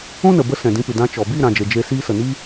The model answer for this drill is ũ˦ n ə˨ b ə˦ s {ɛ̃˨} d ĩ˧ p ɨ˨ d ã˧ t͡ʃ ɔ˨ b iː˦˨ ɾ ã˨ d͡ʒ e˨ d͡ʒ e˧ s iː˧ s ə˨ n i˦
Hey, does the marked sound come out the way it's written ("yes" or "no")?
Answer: yes